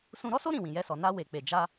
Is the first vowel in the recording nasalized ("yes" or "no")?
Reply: yes